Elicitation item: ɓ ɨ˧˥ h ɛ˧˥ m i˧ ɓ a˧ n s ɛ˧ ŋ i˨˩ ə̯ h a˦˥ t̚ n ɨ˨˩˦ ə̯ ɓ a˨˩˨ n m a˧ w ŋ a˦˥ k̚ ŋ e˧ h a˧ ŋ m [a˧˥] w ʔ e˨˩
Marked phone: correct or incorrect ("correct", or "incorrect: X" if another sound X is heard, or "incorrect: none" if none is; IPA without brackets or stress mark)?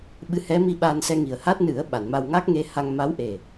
correct